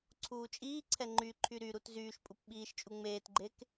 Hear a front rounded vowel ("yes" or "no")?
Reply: yes